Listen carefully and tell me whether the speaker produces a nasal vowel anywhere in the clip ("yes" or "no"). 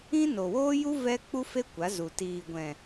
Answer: yes